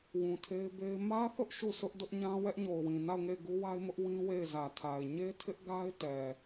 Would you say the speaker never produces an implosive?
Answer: yes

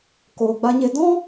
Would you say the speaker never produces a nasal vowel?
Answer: no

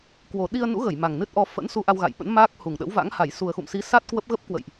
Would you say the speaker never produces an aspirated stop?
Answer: yes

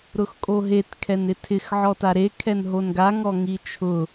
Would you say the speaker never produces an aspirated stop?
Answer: no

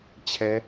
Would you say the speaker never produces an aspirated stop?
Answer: no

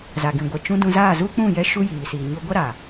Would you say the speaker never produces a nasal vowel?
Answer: no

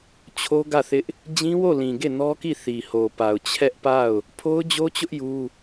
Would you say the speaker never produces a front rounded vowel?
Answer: yes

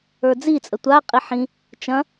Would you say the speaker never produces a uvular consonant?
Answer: no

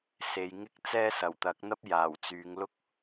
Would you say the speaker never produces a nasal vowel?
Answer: yes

